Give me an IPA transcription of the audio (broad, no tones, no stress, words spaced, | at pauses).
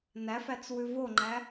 næfæt͡s wʉvoŋ͡ǃæ